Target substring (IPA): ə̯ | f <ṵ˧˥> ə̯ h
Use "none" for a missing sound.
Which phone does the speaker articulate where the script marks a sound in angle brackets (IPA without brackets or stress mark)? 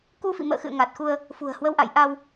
ṳ˨˩